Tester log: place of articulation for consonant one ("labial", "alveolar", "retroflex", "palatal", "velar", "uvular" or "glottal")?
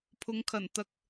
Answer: labial